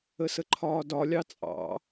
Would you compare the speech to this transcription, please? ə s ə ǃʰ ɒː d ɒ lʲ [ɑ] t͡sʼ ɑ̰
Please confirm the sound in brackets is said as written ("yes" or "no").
yes